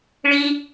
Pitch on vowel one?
high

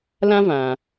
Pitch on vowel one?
high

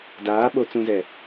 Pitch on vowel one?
rising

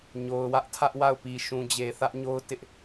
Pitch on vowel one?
low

